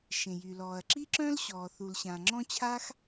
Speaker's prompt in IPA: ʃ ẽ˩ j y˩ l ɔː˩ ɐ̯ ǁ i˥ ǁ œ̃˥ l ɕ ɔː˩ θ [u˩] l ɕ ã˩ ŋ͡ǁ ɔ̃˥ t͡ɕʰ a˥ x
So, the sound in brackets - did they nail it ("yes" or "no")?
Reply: yes